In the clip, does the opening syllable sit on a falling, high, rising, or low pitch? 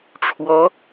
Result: rising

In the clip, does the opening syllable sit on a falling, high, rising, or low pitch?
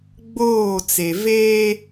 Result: falling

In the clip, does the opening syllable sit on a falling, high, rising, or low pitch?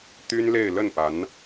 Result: high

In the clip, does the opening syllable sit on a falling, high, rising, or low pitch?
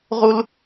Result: high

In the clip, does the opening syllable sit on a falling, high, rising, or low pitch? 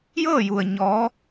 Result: falling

